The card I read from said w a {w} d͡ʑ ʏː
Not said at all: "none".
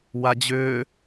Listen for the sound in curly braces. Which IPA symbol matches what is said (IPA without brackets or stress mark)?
none